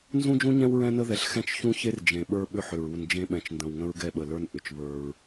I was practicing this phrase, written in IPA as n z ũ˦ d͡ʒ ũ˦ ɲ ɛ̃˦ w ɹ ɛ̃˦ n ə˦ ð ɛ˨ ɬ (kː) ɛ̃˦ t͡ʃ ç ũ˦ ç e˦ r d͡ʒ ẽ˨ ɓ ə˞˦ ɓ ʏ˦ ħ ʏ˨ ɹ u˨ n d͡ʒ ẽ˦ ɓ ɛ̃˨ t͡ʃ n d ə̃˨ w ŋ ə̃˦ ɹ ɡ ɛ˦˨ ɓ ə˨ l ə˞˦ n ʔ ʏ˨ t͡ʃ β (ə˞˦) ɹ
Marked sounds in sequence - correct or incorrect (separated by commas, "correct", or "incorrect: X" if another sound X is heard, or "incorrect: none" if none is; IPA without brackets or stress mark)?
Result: incorrect: x, correct